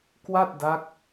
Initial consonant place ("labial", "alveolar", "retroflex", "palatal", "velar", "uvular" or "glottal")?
velar